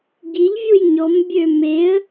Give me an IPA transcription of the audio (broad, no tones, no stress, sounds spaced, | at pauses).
ɟ i ʎ vʲ u j ɲ ɔ m bʲ ø m e ə̯